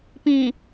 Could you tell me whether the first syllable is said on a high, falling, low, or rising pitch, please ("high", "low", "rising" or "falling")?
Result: low